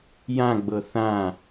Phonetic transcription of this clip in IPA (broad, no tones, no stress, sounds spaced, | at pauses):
j ã ɡ͡b ɤ θ ã